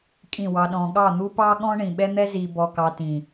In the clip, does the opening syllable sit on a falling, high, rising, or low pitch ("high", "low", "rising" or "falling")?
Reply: falling